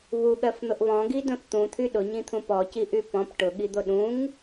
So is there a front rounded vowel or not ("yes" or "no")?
yes